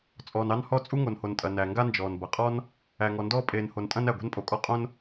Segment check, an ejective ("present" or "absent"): present